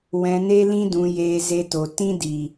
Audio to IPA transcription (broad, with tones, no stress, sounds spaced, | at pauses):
w ɛ̃˧ n e˦ l ĩ˦ d ũ˧ j eː˧ z e˧ t o˨ t ĩ˦ d i˨